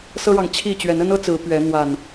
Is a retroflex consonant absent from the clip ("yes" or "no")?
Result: no